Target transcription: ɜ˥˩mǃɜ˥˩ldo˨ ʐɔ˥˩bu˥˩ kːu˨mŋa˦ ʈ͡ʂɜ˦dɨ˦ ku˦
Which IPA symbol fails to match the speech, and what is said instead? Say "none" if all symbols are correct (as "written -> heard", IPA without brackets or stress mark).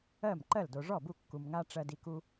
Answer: ɨ˦ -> i˦